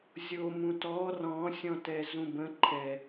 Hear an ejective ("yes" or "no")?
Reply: no